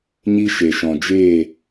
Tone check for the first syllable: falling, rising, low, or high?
high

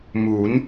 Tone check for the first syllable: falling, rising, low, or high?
rising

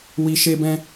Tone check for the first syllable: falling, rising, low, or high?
low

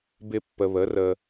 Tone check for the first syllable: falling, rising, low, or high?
high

